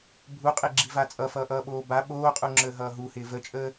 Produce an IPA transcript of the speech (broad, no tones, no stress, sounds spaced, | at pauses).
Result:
bʱ u qʼ e ɡ͡ǁ i v a t͡sʼ ʌ f ʌː ʔ ʌː ɓ oː b a ɓ oː qʼ u ŋ͡ǁ əː ɦ ʌː ɦ u h ɪː v ə t͡ʃʼ əː